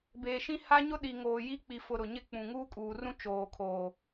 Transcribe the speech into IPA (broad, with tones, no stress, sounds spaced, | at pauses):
b eː˨ ʃ ĩ˦ h a˦ ɲ ʊ˦ ɗ i˨ ŋ oː˨ j i˦ k͡p i˨ f ʊ˨ ɾ ʊ˨ ɲ ɪ˦˨ k͡p ũ˨ ŋ uː˦ kʼ uː˨ r ũ˦ t͡ʃ oː˨ kʰ oː˨